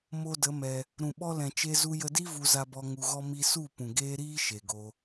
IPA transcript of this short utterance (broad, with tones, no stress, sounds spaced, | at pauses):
m o˧ d ə˨˦ m ɛ˧ | ɾ ũ˨ ɓ ɔ˧ l ɛ̃˨ t͡ʃ e˧ z u˧ j ə˧ d i˦ v u˧ z a˧ b ɔ˧ ŋ u˧ ɣ ɔ˦ m i˦ s u˦˨ p ũ˨ ɡ eː˦ ɾ iː˦ ʃ e˨ ɡ o˧